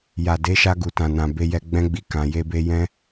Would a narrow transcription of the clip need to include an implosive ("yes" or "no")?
no